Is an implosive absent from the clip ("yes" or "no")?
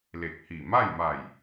yes